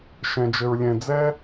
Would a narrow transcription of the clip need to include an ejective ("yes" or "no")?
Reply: no